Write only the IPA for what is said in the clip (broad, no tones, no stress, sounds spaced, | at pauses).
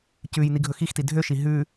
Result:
c ʉ j n i ɡʱ ɵ x i x t i dʱ ø ʃ i ɦ ʉ